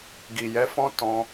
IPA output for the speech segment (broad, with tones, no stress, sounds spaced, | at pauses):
ɡ i˨ j ɛ˨˦ f ɔ̃˦ t ɔ̃˧